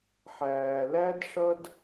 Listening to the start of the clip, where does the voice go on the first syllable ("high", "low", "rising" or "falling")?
low